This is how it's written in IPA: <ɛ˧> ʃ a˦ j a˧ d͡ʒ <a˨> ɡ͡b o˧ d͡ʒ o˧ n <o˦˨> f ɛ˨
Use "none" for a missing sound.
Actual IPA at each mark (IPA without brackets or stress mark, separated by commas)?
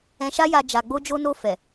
ɛ̃˧, a˨, o˧